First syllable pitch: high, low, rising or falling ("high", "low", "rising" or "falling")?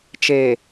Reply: low